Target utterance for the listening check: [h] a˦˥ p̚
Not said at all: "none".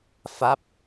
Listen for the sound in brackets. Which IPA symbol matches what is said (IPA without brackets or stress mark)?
f